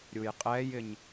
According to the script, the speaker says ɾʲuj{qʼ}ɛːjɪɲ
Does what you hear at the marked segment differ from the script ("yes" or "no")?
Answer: no